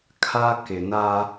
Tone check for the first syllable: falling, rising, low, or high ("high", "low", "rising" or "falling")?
high